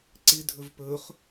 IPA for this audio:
ǀ ɪ dʱ ɵ v p ɵ χ

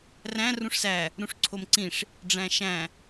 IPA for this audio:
r æ̃ r ũ ʂ s æ | ɾ ũ ʂ ǀʰ o m ǀ ĩ ʂ | ɖ͡ʐ æ̃ ʃ æ̃

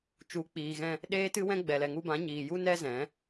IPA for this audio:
t͡ʃ u˨˦ k͡p iː˨ ɣ ɛ̃˧ | ɗ eː˦ t ɨ˦ w ɛ̃˦ ɡ͡b ɛ˨ l ɛ˨ ŋ u˧ b ã˨˦ ɲ iː˨ j u˦ n ɛ˦ z ɛ̃˨˦

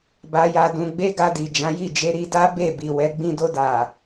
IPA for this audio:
b a˧ j a˧ d ũ˧ ɡ͡b e˦ ɡ a˧ d i˨ d͡ʒ ã˨˦ j i˦˨ d͡ʒ e˧ ɾ i˧ d a˦ b e˦˨ b i˨ w ɛ˨˦ ɡ͡b ĩ˦ d o˧ d a˨

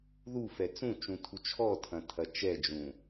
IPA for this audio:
ð u f ɛ t͡s ũ t͡ʃ ũ tʰ u t͡ʃʰ ɔ tʰ ɐ̃ tʰ ɐ t͡ʃ ɛ d͡ʒ ũ

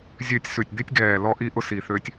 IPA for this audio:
zʲ øː˥˨ tʲ s ʉ˧˩ tʲ d̪ i˦˥ tʲ ɡ ɛː˧˩ l ɔ˦˥ ʔ i˦˥ ʔ ʊ˥˨ s i˧˩ θ ø˦˥ tʲ

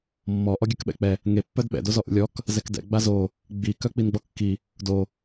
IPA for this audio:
mː ɔ ʔ ɔ ɡʲ œ k ɓ ɛ̰ k͡p ɛ | ŋ e pː œ d ɓ ɛ̰ d o z ɔ ʔ ṵ lʲ ɔ k | z ɛ k d ɛ̰ ɡ͡b a z o | ɡ͡b i k œ k͡p i n ɡ͡b ɔ kː i | d o

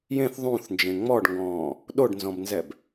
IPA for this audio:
j ẽ θ ðˤ ũ θ n d͡ʒ ẽ ŋ͡m ɔ ɖ ŋ ɡ ɔ̃ː | ɗ o ɖ n z ɔ̃ b n z ɛ b

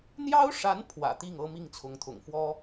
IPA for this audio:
n̪ j ɑ˥ ʊ̯ ʂ a˧˥ n pʰ w ä̰˨˩ t̪ i˥˩ ŋ ɤ˥ m i˥˩ ŋ t͡sʰ ʊ˧˥ ŋ t̪ʰ ʊ̰˨˩ ŋ f w ɔ˥

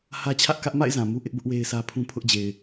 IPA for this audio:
h ä˦ t͡ɕʰ ä˦ ʔ k ä˦ ʔ m a̰˦˨ ɪ̯ z ã˨ m u˦ ʔ ɪ˦ ʔ b ʊ˦ ʔ w e˦ ɪ̯ s ä˦ pʰ ũ˦ pʰ ʊ˦ ʔ d͡ʑ e˨ ɪ̯

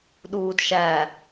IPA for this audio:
ɗ uː d ʃ æ

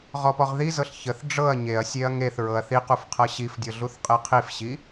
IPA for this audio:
ʁ ɔ p ɔ ʁ ð i z ɤ ɬ ç ə θ ɖ͡ʐ ɤ ɐ̯ ɲ e ɐ̯ sʲ e ɐ̯ ŋ e θ ɹ ɤ ɐ̯ θ i q u f qʰ ɤ ɕ i f dʲ ɤ ɮ u θ qʼ e qʰ i f ɕ i

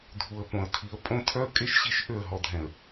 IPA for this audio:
dʱ u˨ ə̯ p õ˨ ə̯ tʰ i˨ ə̯ pʼ õ˦ tʰ œ˦ ə̯ kʼ e˦ ʃ ɕ i˦˨ ʃ ʔ ø˦˨ ə̯ ɦ ɔ˨ dʱ ɛ̃˨ ə̯

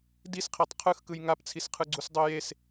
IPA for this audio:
d i s qʰ e tˤ qʰ ɯ x k ɯ j ŋ a p t͡sʰ i s qʰ ɯ ɡ͡ǀ u s dˤ o j e s

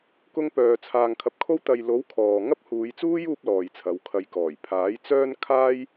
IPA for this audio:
k ʊ˧ ŋ p œː˨ t͡sʰ aː˨ ŋ kʰ ɐ˨˥ p̚ kʰ o˧ w t̪ ɐ˨ j l o˨˥ w kʰ ɔː˨ ŋ ɐ˥ p̚ h uː˨˧ j t͡s uː˥ j uː˥ p̚ l ɔː˨ j t͡sʰ ɐ˨˧ w kʰ ɐ˨ j k ɔː˨˩ j pʰ aː˨˥ j t͡s œː˥ n kʰ aː˥ j

